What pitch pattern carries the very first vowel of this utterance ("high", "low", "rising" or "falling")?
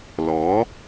rising